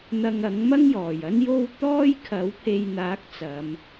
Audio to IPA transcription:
n̪ ɐ˧ ŋ ɐ˨˥ ŋ m ɐ˥ ŋ j ɔː˨˩ j ɐ˥ n j o˥ w t̪ ɔː˥ j kʰ ɐ˨˥ w pʰ e˨ j n̪ aː˨˥ k̚ t͡s ɐ˨˧ m

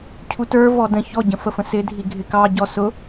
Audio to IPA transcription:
cʰ u t ə˞ v ɔ d ə̃ ç ɔ ɟ ə̃ f ə f ə̃ s ɪ dʱ i ɡʱ ɪ k ɑ ɟ ɔ s ʊ

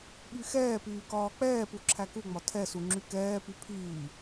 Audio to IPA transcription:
ɓ y x ɛː p yː k ɒː k͡p ɛː p u ǁʰ æ k u ŋ͡m ɒ tʰ ɛ s u ŋ͡ǁ y k ɛː p y pʰ iː

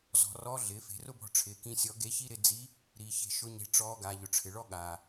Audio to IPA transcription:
z ɔ̤˩˧ r ɔ˧˥ ɮ ɪː˩˧ f e̤˩˧ r ʊ˥ b ɔ̤˧ ʈ͡ʂʰ ɪː˩˧ k ĩ˧ sʲ ɔ˧˥ ɡ e˧˥ ç i˥ ɾ ɪ˧ d͡z i˧˥ | ɾ i˩˧ ç e̤˧ ʃ ʊ˥ ɲ e̤˧˥ ʈ͡ʂ ɔː˧˥ ɡ a˩˧ ʎ ʊ˩ ʈ͡ʂʰ ɪ˩ ɭ ɔ˥ ɠ aː˩

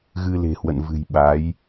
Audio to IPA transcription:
ɣ ɨ˧ l e̤˨˩ h w ə̰˧˨ n v ɨ̤˨˩ j ɓ a˨˦ j

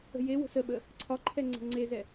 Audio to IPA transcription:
ə̤ j e w ə̤ s ə ɓ ə | ǀʰ ɒ ǃʰ ɛ ŋ͡ǀ ə̤ ŋ͡ǀ e z ɛ

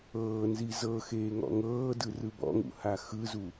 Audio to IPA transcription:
ɤː n z i z ɤ x eː ŋ ɔ̰ ŋ ɤː d ɯ r ɯ b ɔ̰ ŋ ṵ h a x ɯ z u

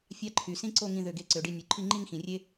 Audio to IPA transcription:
fʲ ɑ˥ ǃʰ y˩˧ s ĩ˥ ǀ o˥˧ ŋ ĩ˧ ð ø˧˩ ɡ e˧ ǀ ø˩˧ ɖ i˧ nʲ u˩˧ ǃʰ i˥˧ ŋ͡ǃ i˥˧ ŋ x ĩ˩˧ rʲ e˥

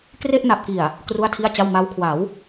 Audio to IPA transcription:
k r e˥˩ ʔ n a˨˩ p̚ k i˨˩ a̯ | k r u˥˩ a̯ tʰ i˥˩ a̯ t͡ɕ a˥˩ w m a˦˥ w kʰ w a˩˦ w

